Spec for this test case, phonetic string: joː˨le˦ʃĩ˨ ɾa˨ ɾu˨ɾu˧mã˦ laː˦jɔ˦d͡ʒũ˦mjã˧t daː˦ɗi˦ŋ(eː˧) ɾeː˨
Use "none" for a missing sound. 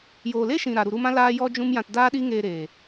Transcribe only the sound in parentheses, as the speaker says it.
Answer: eː˧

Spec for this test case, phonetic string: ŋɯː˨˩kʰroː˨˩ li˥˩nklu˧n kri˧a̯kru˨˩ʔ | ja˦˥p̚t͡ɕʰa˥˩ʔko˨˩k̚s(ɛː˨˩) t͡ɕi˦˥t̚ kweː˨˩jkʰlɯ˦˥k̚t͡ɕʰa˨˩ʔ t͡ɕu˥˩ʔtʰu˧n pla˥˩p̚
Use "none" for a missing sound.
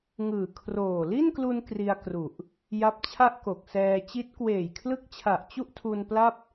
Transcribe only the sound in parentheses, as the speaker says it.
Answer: ɛː˧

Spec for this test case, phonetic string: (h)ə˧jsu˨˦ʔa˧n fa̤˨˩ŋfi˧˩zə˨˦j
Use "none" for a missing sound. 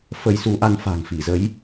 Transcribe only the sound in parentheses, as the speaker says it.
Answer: f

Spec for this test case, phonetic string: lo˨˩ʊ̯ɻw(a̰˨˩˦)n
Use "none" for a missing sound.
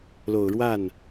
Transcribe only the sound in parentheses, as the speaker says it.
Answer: a˥˩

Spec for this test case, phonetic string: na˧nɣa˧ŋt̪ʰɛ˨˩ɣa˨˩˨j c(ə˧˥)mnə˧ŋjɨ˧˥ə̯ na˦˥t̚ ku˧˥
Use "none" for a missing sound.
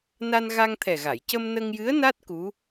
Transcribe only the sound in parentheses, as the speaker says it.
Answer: ə˧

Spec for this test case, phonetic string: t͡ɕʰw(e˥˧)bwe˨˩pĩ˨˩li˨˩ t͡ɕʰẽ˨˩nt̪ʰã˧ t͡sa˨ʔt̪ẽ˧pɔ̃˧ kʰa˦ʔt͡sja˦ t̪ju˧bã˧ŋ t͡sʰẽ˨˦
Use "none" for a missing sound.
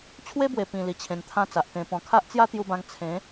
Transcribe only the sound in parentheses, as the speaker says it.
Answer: e˦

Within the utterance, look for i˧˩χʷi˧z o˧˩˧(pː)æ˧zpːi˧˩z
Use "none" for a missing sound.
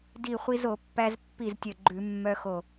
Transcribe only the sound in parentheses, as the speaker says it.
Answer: pː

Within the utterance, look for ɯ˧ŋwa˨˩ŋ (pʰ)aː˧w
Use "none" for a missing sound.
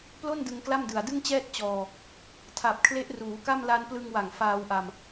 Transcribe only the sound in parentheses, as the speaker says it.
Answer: f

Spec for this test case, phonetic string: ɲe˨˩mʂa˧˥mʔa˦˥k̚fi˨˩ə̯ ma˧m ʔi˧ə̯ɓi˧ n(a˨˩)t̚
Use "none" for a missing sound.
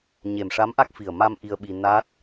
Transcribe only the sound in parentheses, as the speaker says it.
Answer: a˦˥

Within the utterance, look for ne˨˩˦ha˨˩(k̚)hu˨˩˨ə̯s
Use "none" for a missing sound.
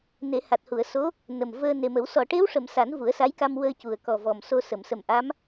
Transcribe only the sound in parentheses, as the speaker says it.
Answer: t̚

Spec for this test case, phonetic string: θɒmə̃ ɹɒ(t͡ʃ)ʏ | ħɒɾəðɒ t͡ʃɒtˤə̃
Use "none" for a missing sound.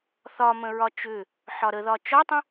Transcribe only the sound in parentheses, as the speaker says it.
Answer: t͡ʃ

